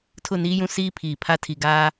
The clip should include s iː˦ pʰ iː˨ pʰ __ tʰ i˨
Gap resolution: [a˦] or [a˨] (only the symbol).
a˦